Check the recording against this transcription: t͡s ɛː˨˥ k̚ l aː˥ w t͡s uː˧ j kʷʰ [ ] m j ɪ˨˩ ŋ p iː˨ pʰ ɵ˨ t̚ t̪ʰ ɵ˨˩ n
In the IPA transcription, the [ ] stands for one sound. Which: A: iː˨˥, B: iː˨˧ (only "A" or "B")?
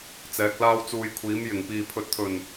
A